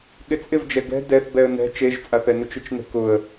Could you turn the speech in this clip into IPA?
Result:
ɠ ɪ t͡sʼ ɪ v d͡ʒ ɛ ɡ ɛ̤ d ɛ θ b ɛ ə̯ n ɛ̤ t͡ʃ e ʒ t͡sʼ a θ ɛ n ʊ t͡ʃ ʊ t͡ʃ n ɛ̤ k ʊ ə̯

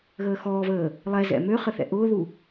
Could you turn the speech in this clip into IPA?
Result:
ɣ əː x ɔː v əː | lˠ ɛ z ɛ̰ m ø χ ə θ ɛ̰ ʔ ʊː ð u

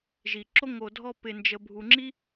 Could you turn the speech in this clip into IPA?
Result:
ʒ i˩ ǁ o˥ ŋ o˨ dʱ ɔ˦ p ɪ˨ n d͡ʒ ə˨ bʱ u˨ ŋ͡ǁ i˥

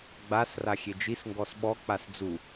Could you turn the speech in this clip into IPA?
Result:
ɡ͡b a s r a xʲ e d͡ʒ i s ŋ ɡ ɔ s ɓ ɔ k͡p a s d͡z u

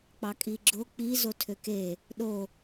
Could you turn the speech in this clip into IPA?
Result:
k͡p ɑ kʼ i ɡ͡ǁ o k͡p i z o tʰ ø k e | ɗ o

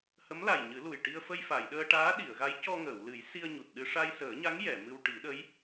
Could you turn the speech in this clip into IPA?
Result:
h ə˧˥ m l a˨˩ j ɲ ɨ˨˩˦ l u˨˩ j ʈ i˧ ə̯ f ə˧ j f a˨˩˨ j ɗ əː˧ ʈ aː˧˥ ɗ i˨˩˨ ə̯ ɣ a˧˥ j c ɔ˧ ŋ əː˨˩˨ w l ɨ˨˩˦ j s i˧ ə̯ ɲ u˨˩ t̚ ɗ ɨ˧ ʂ a˧ j s əː˨˩˦ ɲ a˧˥ ŋ j ɛ˨˩˨ m ɨ˧ w ʈ i˨˩˦ ɗ ə˧˥ j

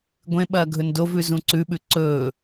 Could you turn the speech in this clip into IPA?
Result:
ɡʷ ẽ ɓ ɐː ɡʱ ɵ n d o v ʉ z ũ ǀ ʉ ɓ ʉ ǀ ɵː

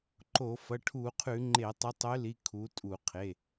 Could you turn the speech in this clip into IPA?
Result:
ǃ o˧˩˧ f ɐ˩˧˩ ʈʰ u˧˩˧ qʰ ʉ˧˩˧ ŋ͡ǃ e˧˩˧ tˤ ɨ˨˦ tˤ ʉ˨˦ l i˩˧˩ kʰ u˨˦ tʼ u˧˩˧ qʰ e˩˧˩

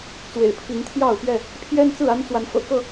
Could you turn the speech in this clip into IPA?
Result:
t͡s w ḛ˨˩ ɪ̯ pʰ i˨˦ ŋ t̪ʰ j ɑ˥˨ ʊ̯ p ɥ ɛ˥˨ | pʰ j ɛ˦ n t͡s ɹ̩˥˨ a˦ n t͡s w a˨˦ n f ɤ̰˨˩ k ɤ˥˨

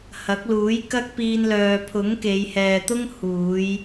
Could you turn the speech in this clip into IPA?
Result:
h ɐ˨˥ k̚ l uː˨˥ j k ɐ˥ k̚ p iː˧ n l œː˨ pʰ ʊ˨˥ ŋ k e˨˧ j h ɛː˨ t̪ ʊ˥ ŋ h uː˨˧ j

